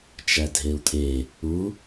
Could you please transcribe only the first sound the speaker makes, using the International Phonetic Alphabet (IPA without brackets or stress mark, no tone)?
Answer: t͡ʃ